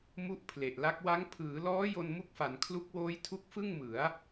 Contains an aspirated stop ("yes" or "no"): yes